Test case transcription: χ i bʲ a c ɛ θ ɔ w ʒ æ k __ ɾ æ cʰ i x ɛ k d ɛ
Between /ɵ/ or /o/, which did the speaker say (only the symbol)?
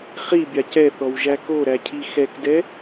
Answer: o